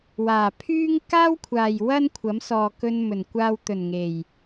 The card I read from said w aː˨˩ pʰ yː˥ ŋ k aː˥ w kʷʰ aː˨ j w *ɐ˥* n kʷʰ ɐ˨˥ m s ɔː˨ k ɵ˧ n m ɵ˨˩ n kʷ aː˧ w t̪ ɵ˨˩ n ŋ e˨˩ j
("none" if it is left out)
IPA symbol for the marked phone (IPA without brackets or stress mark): ɐ˥